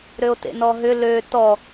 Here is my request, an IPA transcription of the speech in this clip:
ɾ ø o̯ t ḛ n ɔ ɦ ʏ l ø t ɔ

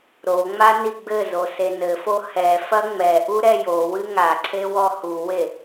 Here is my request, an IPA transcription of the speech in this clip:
ɾ o ŋ͡m a n i ɡ͡b ɘ z o s e n ɘ f o h ɛ f ɐ ŋ͡m ɛ ʔ u ɾ ɛ j o w ɨ ŋ a ǀʰ e w ɔ h u w e

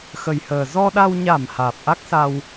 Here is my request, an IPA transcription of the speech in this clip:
x ə˨˩ j h əː˨˩ z ɔ˧ ɗ a˧ w ɲ a˧˩ m h aː˨˩ p̚ ʔ a˦˥ k̚ s a˧ w

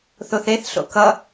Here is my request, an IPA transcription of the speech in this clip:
θ o θ e θ ɬ o̰ k ʌ

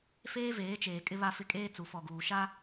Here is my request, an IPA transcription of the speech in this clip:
f eː˦ v eː˨˦ t͡ʃ eː˨ kʼ ɪ˦ β a˦ f ɪ˦ kʼ eː˦ t͡s u˨ f ɔ˨ ɡ uː˨ ʃ a˦

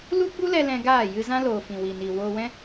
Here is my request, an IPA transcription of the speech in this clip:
l u˦ ɡ͡b u˦ l ɛ˧ l ɛ̃˧ ɡ aː˦˨ j ɨ˧ z ã˦ l oː˨ f ĩ˨ w i˨ n i˨ w oː˧ w ɛ̃˦

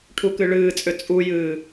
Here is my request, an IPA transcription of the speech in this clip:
ʈʰ u k ɨ ɭ ɨː t͡sʼ ʏ t͡sʼ u j ɨː

